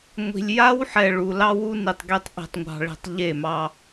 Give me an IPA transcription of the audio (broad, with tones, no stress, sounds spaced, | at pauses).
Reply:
ŋʷ i̤˨ lʲ j a˦ w ħ ɛ˨ ɭ u˨ l ɑ˦ w u˦ n i˨ tˤ ɡ e˦ tˤ ʔ i̤˨ tˤ ŋʷ ɑ̤˨ ɭ i̤˨ tˤ ʎ e˦˨ m ɑ˦